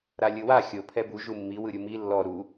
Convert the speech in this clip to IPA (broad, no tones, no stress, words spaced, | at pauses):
ɾalʲɯwa xʲo pʰɛbu ʒumːi wɯɾʲumi lːɔ ɾu